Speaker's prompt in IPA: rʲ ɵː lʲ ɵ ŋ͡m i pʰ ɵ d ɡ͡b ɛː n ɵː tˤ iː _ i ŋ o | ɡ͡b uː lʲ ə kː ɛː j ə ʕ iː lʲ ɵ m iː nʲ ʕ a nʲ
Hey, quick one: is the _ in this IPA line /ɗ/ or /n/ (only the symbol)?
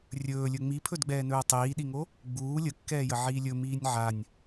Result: ɗ